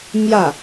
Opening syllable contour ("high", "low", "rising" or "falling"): falling